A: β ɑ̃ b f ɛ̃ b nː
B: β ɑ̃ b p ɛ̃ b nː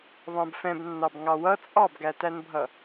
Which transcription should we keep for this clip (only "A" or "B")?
A